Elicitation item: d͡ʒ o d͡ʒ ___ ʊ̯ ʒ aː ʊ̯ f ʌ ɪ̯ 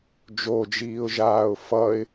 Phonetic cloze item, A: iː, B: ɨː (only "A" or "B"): A